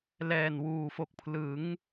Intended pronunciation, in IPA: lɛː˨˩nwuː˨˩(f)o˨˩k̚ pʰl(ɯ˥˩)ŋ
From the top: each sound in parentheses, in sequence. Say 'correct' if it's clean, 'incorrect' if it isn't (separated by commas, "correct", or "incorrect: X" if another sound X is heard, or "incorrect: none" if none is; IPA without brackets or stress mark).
correct, incorrect: ɯ˩˦